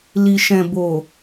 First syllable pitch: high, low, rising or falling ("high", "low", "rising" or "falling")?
low